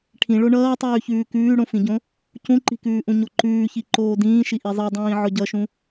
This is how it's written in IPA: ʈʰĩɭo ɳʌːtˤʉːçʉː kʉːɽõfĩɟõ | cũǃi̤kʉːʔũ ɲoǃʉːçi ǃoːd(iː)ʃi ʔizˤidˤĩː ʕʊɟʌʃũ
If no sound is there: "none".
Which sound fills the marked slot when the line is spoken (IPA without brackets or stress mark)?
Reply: ĩː